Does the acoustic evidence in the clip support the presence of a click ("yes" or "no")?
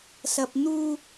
no